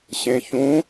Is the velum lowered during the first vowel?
yes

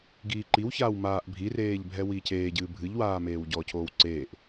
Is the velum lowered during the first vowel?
no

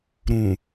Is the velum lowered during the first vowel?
yes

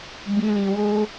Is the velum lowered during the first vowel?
yes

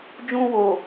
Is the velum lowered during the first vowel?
yes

